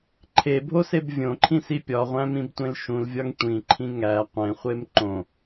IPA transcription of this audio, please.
ǃʰ e bʱ o s e b vʲ õ ǃʰ ĩ s i pʲ ɒ ʁʷ æ̃ m ĩ b tʷ ẽ l ʃ ũ l vʲ ɒ ŋ tʷ ĩ ǃʰ ĩ ŋ æ qʷ ẽ χʷ e m ǃ õ

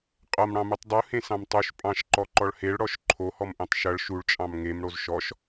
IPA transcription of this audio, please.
qʼ ʌ m ɽ ɑ̃ m u tˤ dˤ u h ẽ s ɑ̃ m tˤ u ʃ pʼ ɑ̃ ʃ ǃ ɔ ǃ ɔ ɭ h e ɭ ɽ ɔ ʃ ǃʰ o h ɔ m ʔ ẽ tˤ ʃ ʌ ɭ ʃ u ɭ t͡ʃʼ ɑ̃ m ŋ e m ɽ o z ʃ ɔ ʃ

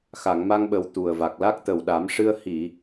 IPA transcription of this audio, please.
x a˨˩˨ ŋ m a˧ ŋ ɓ ə˨˩ w t̪ u˨˩ ə̯ v a˨˩ k̚ l a˦˥ k̚ t̪ ə˨˩ w ɗ a˨˩˦ m ʂ ɨ˧ ə̯ h i˨˩˨

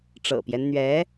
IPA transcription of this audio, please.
ʈ͡ʂ ɤ̰˨˩ p j ɛ˦ n n̪ ɥ ɛ˧˥

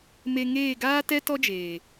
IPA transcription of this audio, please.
m e˧ ŋ eː˦˨ ɡ aː˦ t ɛ˦ t ɔ˦ d͡ʒ eː˨

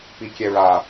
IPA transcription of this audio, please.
p i kʲ ɛ ɹ a

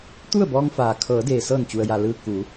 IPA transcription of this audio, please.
t̪ u˥˨ ə̯ b ɔː˧ ŋ f aː˩ kʰ ɤː˩˧ d eː˩ s ɤː˧˩ n t͡ɕ u˩ ə̯ j a˩ l ɯː˧ k u˩˧

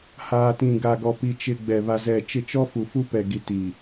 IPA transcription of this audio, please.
h aː˨ t ĩ˨ ɡ a˨ ɡ ɔ˨ p i˨ t͡ʃ ɪ˨ ɡ͡b ɛ˨ β a˨ z ɛ˨ t͡ʃ ɪ˦˨ t͡ʃ ɔ˦ f u˨ f u˦ p ɛ˨ ɡ i˨ t i˨

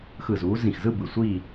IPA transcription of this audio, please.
x ɯ˧˩ z uː˨˦ z ĩ˧˩ x z ɯ˥˧ b ɯ˧˩ sʷ iː˥˧

